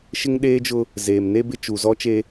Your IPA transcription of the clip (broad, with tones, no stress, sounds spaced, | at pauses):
ʃ ɪ˦ ŋ ɗ eː˦ d͡ʒ ʊ˦ | z eː˨ m n e˦ b ɪ˦ t͡ʃ uː˨ z ɔ˦ t͡ʃ e˦